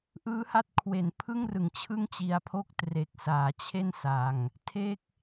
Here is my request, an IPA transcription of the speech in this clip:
ʔɯː˦˥ha˦˥t̚kʰwe˩˦npʰɯ˥˩ŋ rɯ˨˩ŋt͡ɕʰɯ˥˩ŋt͡ɕi˧a̯pʰo˥˩k̚ tre˨˩k̚saː˩˦ t͡ɕʰe˥˩n sa˧ŋ | tʰe˥˩k̚

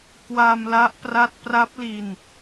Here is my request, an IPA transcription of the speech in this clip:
kwa˧mla˦˥ʔpra˦˥t̚ pra˦˥p̚li˧n

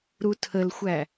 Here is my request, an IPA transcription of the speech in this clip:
ɾutʰəlxʷæ

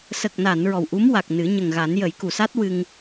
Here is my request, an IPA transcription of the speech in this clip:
sə˨˩k̚na˨˩˨n ɹɔ˨˩wʔu˧˥mwa˨˩k̚nɨ˨˩˦ ɲə˨˩ŋɣa˨˩˦n jə˨˩˦jku˨˩sa˦˥t̚ wɨ˧ŋ

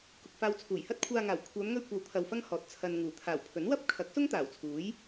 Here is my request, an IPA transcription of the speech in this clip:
kʊ˨k̚faː˧wt͡sʰuː˨˩j hɐ˥t̚kʷʰaː˧ŋaː˨˩w kʷʰœː˨˧mŋɵ˧ɥkʷɐ˨w t̪ʰɐ˧wfɐ˥ŋhɔː˨t̚ t͡sʰɐ˨n ŋuː˨˩t̪ʰaː˨˩wpʰɵ˨˥n wɐ˥p̚kʰɐ˨˥k̚sʊ˥ŋ t̪aː˨˩wt͡sʰuː˨˥j

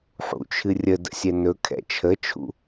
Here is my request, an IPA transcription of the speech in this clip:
ħṵt͡ʃʰɨ rʲədə̰sʲɛ nɵkʰɛ̰ t͡ʃʰət͡ʃʰṵ

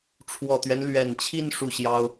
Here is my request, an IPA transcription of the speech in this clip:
ʈ͡ʂʰwɔ˨˩t̪ɥɛ˦n lɥɛ˨˩nt͡ɕʰi˥˧n ʂu˥˩ɕjɑ˥ʊ̯

